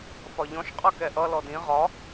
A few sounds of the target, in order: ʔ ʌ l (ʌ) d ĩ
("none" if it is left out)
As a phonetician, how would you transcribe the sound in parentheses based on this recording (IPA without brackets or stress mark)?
ɔ